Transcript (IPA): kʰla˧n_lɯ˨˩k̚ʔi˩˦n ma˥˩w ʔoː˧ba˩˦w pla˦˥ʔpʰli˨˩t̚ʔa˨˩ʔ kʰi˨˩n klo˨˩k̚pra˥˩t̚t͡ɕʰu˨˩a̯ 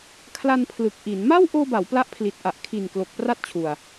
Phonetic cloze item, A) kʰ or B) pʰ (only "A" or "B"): B